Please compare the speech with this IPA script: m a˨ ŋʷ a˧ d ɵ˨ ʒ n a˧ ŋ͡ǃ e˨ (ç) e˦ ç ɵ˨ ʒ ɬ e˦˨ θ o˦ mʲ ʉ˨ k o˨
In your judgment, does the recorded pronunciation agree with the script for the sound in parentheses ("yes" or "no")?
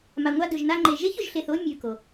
no